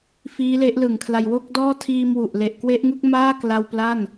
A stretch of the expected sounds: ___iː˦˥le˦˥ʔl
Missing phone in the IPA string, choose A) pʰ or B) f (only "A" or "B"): B